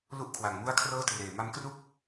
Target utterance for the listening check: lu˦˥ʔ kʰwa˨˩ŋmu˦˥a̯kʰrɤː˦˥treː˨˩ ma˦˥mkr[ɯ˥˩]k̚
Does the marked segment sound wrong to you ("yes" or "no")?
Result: yes